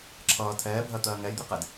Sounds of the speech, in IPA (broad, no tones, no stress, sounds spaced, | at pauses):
ǁʰ ʌː tʰ ɛː bʱ ɜ t̪ ɜː ŋ ɛ j d̪ i q ɛ d